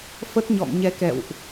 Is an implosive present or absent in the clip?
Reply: absent